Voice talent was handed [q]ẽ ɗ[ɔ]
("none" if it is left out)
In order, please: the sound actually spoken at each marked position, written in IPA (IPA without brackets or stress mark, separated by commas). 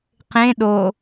q, o